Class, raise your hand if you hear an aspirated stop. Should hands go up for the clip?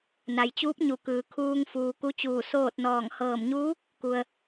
yes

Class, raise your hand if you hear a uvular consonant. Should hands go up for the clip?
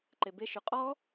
yes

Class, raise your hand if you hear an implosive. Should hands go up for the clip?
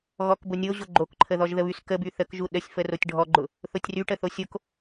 yes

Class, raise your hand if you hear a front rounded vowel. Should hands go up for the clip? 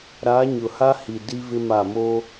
no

